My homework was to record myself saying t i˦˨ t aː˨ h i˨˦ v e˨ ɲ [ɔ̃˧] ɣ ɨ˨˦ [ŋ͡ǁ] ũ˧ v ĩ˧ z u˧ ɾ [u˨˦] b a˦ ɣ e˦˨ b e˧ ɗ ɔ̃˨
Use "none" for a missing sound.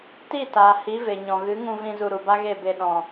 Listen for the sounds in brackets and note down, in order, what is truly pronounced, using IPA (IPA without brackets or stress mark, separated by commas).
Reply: ɔ̃˨, ŋ, u˨